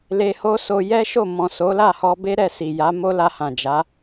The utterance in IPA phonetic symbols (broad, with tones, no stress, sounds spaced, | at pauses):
l e˧ h o˦ s o˧ j ɛ˦ ʃ o˦˨ m ɔ̃˨ s o˨˦ l a˦˨ h ɔ˧ b e˦ ɾ ɛ˦˨ s i˨ j a˨˦ m o˦ l a˧ h ã˨ d͡ʒ a˨˦